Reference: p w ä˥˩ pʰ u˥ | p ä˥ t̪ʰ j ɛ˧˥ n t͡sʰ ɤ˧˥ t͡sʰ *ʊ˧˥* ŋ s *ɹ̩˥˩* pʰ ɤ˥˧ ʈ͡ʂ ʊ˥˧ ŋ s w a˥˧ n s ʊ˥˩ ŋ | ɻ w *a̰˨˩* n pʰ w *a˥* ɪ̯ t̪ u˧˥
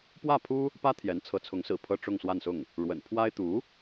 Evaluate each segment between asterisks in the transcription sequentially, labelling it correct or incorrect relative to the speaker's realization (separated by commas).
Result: correct, incorrect, incorrect, correct